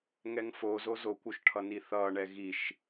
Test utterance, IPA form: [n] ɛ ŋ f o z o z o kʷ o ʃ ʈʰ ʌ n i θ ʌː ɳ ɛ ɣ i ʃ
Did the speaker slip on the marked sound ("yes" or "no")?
yes